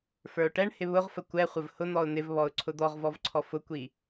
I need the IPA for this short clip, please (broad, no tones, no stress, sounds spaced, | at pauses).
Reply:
f ə˞ ʊ̯ ʈ ɛ ɳ h ɪ β ʊ ʁ f ə kʷ ɛ χʷ ə v h ʊ n̪ ɔ ʊ̯ n̪ ɪ v β ɔ ʊ̯ ǀʰ ʊ d̪ ɔ ʁ v ɔ v ǀʰ ɔ f ʊ kʷ i